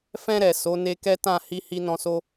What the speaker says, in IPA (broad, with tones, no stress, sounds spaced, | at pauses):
f ɛ̃˧ ɾ ɛ˨ s o˨˦ n e˧ k ɛ˦ t ã˦˨ h i˧ h i˦ n ɔ̃˧ s o˦